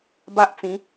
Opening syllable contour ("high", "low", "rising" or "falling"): high